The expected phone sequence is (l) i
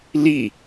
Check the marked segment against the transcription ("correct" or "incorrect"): correct